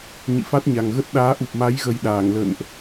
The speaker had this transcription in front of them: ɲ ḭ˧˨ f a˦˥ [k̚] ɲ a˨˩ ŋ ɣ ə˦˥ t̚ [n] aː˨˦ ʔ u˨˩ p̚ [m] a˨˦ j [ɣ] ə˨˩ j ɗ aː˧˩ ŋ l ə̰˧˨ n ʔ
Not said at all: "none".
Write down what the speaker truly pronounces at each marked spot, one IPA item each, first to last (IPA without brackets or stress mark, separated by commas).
t̚, ɗ, m, ɣ